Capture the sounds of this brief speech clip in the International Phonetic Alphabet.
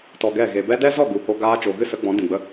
tɔ˧ɡɛ˦˨ ɣe˨bɛ˦ dɛ˦zɔ˦˨ɡu˨ ho˧ ɡaː˦ t͡ʃo˨ɣɨ˦sə˨˦ ɡ͡bɔ̃˨˦dĩ˨ɡ͡bə˧

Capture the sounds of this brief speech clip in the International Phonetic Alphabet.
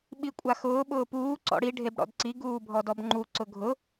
ɓikʷʼaxʊː ɓʊːpuː ǀɔ̰ɽi ɖʱebɽɔ̰dǀi ɡuːbʱɔdɔbŋ͡ǃu ǀʊɡʱʊ

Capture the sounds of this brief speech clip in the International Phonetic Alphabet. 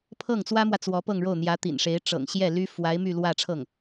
pʰɤ˥˩ŋt͡swä˥mwä˨ t͡swɔ˧˥pɤ˥˧ŋɻo˥˩ʊ̯n̪jä˧˥ t̪ḭ˨˩nʂe˧˥ɪ̯ʈ͡ʂɤ̰˨˩ŋ ɕjɛ˥˩ly˥ fwa˧˥ɪ̯ my˥˧lwä˥˧ ʈ͡ʂʰɤ˥˩ŋ

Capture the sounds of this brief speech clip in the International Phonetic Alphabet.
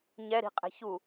ɲɛɾi̤qʼɛ̤ çu

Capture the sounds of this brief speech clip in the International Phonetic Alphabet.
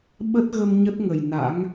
ɓə˦˥t̚ɣə˧m ɲə˦˥t̚ŋə˨˩j na̰˧˥ŋ

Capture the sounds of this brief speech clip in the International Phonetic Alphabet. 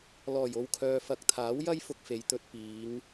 lɔː˨˩jo˨wkʰœː˨fɐ˨˥k̚ t̪ʰaː˨˥wjɐ˥jfʊ˧k̚fe˨j t̪ɵ˧t̚piː˨˧ŋ

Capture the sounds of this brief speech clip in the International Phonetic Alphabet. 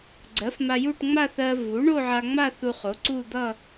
ɡ͡ǀɜ˩˥fma˧ju˥˧ʈ ŋ͡ma˥˧θɜ˧vu˩˥ ɳo˥˧ʕa˧ŋ͡ma˥˧ θu˧χo˩˥ǀu˥˧ d̪ʌ˥˧

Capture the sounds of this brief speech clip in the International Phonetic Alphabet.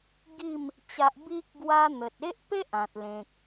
ɡi˥˧m | t͡ɕa˦ʔ bi˦k̚ ɡwa˦ n̪ə˨t̚e˦ʔpe˦ʔ ã˨t̚lẽ˨k̚

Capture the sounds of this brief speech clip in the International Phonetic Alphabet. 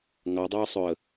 ŋɑdˤœʊ̯sˤɵə̯

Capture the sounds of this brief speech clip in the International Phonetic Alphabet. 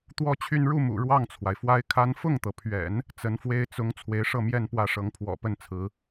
t̪wɔ˥t͡ɕʰy˥˧n ɻu˥˩mṵ˨˩ ɻwɑ˥˩ŋt͡sʰwa˩ɪ̯fwa˥ɪ̯kʰa˥n fʊ˥˩ŋt̪ɤ˩pʰɥɛ̰˨˩˦n | t͡sə˧˥nfwe˥ɪ̯ t͡sʊ˧˥ŋ t͡sʰwe˧˥ɪ̯ʂɤ˥˧mjɛ˥˧n pwä˥˩ʂɤ˧˥ŋ pʰwɔ̰˨˩pə˥˩n t͡sʰɹ̩˧˥

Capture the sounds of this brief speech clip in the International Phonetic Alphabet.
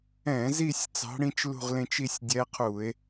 ɛ̃˧˩˧zi˦˨sʲ t͡sɑ̤˧˥ɽĩ˧˥t͡ʃlṳ˦˨ʁlẽ˦˨t͡ʃ i˦˨sʲ dʲɛː˧˥qʰuː˧˩˧e̯

